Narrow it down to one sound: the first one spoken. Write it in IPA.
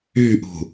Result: y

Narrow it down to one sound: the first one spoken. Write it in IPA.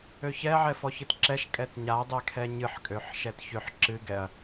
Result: ø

